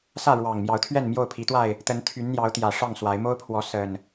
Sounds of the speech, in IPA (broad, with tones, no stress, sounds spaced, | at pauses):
s ä˥˨ ɻ w ɑ˨˩ ŋ m j ɑ˨˦ ʊ̯ t̪ʰ ɥ ɛ˥˨ n m j o˥˨ ʊ̯ pʰ i˨˦ t̪ w a˥˨ ɪ̯ | t̪ ə˨˦ n t̪ʰ y˨˦ n n̪ j ɑ˨˦ ʊ̯ t̪ j ä˨˩ ʂ ɑ˥˨ ŋ s w a˨˦ ɪ̯ m o˦ ʊ̯ pʰ w ɔ˨˦ s ə˨˩ n